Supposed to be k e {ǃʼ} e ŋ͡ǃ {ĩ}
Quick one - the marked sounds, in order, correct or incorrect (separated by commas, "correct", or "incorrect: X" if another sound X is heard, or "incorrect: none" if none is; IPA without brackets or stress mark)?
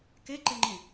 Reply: incorrect: ǃ, correct